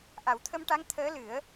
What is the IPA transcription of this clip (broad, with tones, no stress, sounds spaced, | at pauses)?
ʔ a˨˩˦ w t̪ʰ ə˧ m ʈ a˧˥ ŋ t̪ʰ əː˧˥ l ɨ˨˩˦ ə̯